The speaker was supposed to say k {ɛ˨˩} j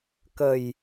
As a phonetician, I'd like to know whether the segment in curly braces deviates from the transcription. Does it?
yes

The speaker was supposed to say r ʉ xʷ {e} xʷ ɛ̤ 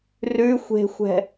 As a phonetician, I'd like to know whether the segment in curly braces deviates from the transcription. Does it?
yes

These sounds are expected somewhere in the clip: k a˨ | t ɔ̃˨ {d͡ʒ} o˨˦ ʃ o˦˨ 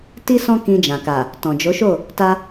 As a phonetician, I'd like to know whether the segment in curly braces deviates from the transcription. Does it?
no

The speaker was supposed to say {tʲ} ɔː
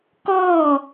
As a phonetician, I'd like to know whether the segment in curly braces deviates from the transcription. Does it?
yes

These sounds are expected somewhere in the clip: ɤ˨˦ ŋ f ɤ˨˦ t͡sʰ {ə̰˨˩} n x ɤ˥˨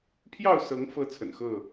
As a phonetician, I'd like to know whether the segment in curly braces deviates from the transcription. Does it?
no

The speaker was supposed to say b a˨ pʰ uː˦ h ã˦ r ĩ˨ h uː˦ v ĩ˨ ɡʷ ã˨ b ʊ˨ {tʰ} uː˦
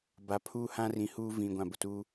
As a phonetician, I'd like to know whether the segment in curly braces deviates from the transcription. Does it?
yes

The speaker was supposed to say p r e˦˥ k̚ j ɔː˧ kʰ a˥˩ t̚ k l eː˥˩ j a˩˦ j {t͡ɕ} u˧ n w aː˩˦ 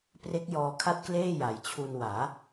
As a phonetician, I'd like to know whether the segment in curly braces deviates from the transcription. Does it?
yes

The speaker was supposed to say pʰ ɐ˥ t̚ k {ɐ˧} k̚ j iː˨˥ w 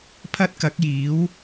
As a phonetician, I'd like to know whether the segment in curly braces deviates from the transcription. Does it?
yes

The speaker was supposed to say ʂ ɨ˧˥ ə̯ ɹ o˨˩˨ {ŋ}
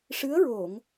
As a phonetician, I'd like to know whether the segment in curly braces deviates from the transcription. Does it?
no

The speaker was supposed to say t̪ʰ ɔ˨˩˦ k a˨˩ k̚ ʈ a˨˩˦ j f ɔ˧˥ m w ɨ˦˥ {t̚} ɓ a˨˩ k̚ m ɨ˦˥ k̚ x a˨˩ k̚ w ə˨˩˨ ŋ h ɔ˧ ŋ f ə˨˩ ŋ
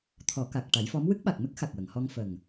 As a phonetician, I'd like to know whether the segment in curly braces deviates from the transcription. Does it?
yes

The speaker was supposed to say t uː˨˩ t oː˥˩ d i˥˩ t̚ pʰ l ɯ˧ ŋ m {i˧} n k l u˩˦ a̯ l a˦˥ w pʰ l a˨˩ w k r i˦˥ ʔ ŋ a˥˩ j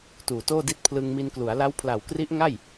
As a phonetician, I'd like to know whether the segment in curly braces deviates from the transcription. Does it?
no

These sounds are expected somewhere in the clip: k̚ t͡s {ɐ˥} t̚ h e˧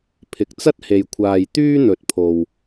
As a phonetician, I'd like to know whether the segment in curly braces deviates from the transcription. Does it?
no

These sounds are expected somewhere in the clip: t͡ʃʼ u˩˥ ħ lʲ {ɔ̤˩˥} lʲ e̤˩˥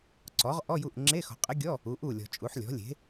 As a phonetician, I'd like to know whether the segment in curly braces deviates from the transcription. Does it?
no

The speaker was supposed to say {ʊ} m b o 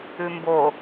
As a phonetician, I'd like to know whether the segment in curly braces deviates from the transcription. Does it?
yes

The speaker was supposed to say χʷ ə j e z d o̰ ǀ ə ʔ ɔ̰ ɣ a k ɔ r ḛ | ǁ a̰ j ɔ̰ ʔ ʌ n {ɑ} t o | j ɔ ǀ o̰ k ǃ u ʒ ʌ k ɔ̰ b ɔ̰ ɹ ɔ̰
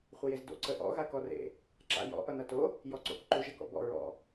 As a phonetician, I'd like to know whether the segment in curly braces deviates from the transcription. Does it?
yes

